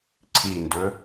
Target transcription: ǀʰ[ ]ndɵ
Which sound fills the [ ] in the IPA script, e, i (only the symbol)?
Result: i